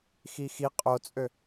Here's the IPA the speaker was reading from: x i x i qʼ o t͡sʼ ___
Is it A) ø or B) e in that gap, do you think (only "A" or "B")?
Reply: A